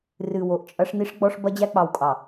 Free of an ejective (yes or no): no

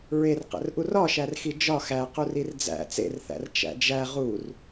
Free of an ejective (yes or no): yes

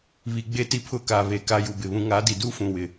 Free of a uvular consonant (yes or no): yes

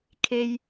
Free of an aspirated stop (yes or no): no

